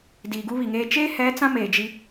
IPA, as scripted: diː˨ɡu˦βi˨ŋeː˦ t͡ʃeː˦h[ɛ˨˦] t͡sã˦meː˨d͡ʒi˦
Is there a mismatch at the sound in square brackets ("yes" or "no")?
no